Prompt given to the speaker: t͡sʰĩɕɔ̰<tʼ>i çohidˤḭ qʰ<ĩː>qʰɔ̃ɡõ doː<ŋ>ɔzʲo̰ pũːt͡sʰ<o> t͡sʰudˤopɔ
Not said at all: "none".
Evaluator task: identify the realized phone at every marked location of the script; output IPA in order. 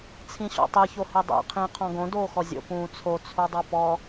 tˤ, ĩː, x, o

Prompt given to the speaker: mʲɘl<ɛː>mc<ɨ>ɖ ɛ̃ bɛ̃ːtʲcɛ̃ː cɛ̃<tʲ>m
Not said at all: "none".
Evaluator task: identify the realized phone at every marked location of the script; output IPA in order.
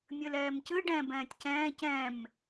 ɛː, ɨ, none

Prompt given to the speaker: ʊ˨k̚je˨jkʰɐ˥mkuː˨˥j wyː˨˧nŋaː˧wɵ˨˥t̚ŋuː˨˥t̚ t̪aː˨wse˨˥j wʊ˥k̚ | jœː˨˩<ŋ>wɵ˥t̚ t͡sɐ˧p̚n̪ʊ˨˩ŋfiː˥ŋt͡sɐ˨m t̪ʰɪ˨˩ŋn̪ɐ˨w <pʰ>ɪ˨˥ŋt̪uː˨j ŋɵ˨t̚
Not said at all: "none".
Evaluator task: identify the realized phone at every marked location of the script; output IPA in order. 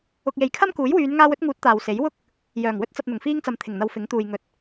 ŋ, f

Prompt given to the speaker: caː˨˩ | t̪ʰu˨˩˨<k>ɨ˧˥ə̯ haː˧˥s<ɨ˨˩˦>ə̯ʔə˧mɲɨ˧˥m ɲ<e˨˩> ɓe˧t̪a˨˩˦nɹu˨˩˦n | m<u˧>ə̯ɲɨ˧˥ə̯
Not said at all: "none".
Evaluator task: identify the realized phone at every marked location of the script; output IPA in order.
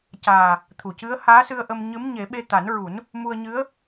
c, ɨ˧, e˨˩˦, u˧

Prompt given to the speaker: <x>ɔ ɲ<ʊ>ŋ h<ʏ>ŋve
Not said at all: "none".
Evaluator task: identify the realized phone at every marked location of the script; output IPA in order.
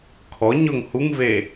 kʰ, ʊ, u

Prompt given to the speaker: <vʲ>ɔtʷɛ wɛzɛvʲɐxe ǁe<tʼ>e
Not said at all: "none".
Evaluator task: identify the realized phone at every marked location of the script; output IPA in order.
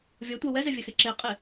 vʲ, qʼ

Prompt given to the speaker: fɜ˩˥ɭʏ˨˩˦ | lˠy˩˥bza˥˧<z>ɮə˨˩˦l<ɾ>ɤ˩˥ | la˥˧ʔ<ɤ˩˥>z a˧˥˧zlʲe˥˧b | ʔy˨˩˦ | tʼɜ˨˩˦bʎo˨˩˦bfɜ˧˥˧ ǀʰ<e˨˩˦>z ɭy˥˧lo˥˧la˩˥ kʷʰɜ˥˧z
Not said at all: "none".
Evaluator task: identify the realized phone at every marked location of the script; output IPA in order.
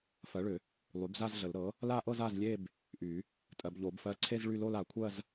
z, ɾ, ɤ˥˧, e˥˧

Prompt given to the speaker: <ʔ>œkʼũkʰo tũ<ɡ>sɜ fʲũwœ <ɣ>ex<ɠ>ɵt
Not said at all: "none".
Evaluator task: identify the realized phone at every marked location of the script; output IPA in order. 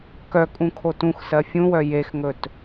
k, x, j, ŋ

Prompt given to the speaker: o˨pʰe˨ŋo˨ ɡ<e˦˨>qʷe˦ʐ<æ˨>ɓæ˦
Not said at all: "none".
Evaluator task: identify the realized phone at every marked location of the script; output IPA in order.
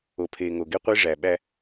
e˦, æ˨

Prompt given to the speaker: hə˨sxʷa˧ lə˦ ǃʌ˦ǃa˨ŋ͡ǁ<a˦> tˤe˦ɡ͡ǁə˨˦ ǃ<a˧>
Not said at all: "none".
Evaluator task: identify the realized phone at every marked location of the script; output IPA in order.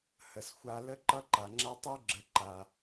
a˦, a˧

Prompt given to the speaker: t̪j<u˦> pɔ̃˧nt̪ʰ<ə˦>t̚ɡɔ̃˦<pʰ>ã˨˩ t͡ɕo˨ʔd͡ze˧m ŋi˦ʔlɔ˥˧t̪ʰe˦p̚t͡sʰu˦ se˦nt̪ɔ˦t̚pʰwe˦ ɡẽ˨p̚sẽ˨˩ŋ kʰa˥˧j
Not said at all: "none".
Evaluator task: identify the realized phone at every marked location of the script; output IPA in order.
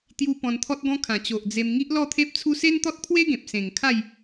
u˧, ɔ˦, kʰ

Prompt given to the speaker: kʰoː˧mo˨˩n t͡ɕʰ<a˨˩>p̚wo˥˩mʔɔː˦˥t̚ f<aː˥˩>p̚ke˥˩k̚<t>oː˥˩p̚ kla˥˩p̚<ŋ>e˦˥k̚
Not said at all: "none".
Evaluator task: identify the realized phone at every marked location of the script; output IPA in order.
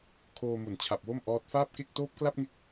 a˨˩, aː˥˩, t, ŋ

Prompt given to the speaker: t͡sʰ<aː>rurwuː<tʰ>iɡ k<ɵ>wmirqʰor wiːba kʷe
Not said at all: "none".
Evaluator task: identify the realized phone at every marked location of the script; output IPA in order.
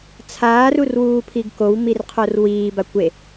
aː, pʰ, o

